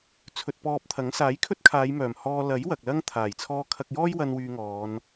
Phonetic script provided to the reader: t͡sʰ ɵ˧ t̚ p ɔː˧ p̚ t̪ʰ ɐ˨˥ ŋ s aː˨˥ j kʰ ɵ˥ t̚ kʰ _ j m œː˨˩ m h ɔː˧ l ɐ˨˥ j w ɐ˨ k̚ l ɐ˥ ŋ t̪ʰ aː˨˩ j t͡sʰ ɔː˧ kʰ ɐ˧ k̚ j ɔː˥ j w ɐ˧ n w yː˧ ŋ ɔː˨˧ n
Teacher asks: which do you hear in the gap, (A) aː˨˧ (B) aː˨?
A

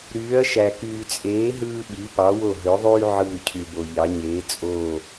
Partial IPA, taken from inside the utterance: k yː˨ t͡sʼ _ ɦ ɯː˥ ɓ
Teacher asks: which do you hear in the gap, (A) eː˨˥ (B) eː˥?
A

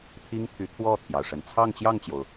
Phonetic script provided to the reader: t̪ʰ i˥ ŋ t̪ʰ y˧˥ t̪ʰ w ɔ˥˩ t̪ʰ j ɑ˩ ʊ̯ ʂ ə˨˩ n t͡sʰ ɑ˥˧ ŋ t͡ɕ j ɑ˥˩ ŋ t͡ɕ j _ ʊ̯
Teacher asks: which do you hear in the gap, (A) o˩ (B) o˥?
A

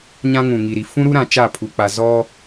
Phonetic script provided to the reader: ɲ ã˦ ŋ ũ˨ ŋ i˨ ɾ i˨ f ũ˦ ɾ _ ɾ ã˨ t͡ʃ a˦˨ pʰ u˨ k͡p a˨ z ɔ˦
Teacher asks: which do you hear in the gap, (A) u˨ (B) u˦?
B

